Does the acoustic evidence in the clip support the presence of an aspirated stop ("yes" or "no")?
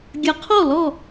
yes